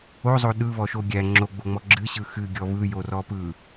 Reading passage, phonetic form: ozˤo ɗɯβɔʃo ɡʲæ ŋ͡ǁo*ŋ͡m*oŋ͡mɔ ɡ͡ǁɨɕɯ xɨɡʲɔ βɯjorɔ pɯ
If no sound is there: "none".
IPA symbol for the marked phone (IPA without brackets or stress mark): ɡ͡b